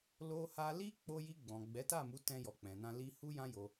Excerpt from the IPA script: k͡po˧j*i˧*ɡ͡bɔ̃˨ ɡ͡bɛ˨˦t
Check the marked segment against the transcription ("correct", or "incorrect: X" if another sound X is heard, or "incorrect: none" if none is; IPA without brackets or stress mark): correct